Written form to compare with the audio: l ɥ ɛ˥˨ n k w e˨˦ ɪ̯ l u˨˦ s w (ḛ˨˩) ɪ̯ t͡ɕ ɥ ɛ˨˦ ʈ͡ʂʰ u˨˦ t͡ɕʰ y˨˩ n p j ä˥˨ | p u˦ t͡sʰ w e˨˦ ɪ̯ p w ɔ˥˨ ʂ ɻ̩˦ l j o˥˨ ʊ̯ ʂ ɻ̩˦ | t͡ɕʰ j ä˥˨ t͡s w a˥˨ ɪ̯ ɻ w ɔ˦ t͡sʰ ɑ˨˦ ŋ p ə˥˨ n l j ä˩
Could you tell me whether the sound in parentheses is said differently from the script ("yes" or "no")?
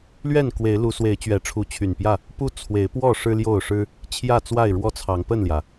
yes